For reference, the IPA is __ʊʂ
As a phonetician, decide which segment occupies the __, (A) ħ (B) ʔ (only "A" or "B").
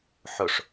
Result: A